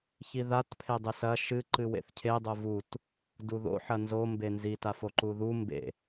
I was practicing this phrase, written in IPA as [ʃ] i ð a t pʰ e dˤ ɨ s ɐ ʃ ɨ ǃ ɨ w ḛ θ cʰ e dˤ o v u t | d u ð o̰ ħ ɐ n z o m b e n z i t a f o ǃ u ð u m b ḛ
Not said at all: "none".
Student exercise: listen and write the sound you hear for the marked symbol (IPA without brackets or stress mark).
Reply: ç